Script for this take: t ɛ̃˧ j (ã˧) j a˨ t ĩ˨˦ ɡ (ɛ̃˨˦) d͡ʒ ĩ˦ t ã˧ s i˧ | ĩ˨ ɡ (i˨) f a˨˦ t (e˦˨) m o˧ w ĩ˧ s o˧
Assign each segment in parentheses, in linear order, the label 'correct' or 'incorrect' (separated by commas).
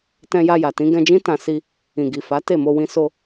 incorrect, incorrect, correct, correct